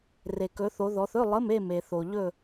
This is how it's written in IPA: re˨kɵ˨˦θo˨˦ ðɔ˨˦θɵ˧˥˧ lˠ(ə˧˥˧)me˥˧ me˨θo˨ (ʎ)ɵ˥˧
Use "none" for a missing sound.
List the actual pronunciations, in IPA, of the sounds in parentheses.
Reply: ə˧˥˧, ʎ

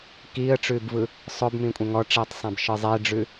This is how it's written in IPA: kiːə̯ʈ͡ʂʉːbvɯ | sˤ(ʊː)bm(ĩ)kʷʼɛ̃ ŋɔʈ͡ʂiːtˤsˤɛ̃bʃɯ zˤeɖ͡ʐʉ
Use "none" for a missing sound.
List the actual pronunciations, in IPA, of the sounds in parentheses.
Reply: ʊː, ĩ

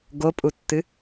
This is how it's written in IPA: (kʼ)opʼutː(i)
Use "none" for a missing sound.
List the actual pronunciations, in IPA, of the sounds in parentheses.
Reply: ɡ, ɨ

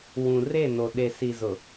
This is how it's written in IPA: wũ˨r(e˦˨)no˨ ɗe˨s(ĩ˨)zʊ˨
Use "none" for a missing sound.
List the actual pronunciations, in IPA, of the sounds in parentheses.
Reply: e˦˨, i˨

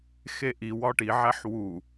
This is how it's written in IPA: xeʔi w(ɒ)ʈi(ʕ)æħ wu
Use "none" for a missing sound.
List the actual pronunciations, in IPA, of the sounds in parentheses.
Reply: ɒ, ʕ

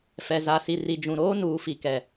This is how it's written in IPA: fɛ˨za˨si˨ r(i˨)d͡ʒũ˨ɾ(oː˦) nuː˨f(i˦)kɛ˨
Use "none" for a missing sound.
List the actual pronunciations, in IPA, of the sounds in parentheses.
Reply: i˨, oː˦, i˨

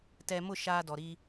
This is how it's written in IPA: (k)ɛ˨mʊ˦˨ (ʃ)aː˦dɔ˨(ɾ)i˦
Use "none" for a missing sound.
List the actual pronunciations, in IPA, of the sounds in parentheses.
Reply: t, ʃ, ɾ

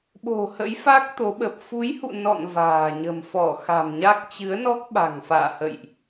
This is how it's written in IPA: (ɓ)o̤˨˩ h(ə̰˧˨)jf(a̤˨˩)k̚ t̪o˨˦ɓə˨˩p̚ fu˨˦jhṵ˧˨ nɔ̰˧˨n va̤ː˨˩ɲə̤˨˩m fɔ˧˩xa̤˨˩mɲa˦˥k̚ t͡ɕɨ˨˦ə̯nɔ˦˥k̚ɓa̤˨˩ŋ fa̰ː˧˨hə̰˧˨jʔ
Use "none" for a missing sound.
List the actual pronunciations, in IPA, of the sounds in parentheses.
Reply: ɓ, ə̰˧˥, a˦˥

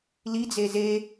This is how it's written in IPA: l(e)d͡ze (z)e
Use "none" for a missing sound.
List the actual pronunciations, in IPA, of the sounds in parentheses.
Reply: i, z

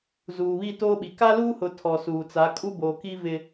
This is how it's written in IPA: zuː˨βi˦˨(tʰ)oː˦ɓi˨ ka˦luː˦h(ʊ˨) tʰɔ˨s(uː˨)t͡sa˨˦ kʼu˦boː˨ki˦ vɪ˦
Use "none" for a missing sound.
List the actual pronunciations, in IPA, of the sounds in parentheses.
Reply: t, ʊ˨, uː˨

